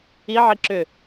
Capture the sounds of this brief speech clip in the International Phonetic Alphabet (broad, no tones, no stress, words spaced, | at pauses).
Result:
iʕi ǁʏ